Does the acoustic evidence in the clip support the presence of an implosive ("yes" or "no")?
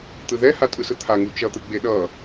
yes